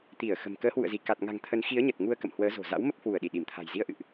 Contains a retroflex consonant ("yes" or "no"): no